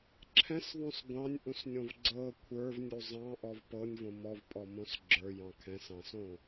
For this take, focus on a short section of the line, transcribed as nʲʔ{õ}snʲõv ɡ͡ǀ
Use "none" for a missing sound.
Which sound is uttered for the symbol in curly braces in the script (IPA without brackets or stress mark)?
ũ